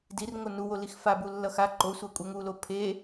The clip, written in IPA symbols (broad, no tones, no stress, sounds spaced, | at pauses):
d i r ŋ o n u w o l i x f a b u lː ʌ x a ǃ o sʷ ɛ kʷʼ ɛ ŋ u l o pʰ e